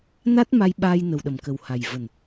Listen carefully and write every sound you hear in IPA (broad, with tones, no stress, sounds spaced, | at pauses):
n a˦˥ t̚ m a˧ j ɓ aː˧ j n ə˨˩ w ɗ ə˨˩ m k ə˨˩ w h a˨˩ j v ə˨˩ n